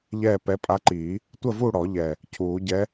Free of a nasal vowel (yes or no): yes